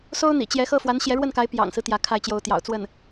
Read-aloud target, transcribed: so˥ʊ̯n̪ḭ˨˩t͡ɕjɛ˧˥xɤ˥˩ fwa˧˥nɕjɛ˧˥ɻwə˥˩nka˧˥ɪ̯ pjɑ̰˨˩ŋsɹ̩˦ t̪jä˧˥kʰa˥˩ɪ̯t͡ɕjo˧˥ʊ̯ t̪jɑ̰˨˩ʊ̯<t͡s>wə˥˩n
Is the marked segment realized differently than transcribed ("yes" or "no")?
no